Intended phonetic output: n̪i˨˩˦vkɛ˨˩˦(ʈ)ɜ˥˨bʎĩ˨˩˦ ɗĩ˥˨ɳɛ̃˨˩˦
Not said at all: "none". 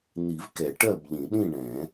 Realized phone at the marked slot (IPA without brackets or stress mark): ʈ